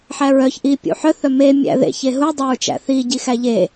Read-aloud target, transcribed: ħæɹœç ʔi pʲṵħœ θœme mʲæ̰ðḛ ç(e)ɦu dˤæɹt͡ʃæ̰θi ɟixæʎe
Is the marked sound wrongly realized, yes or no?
no